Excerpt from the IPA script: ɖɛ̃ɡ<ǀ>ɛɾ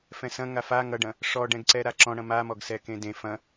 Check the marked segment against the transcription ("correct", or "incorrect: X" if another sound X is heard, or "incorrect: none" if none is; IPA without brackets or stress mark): correct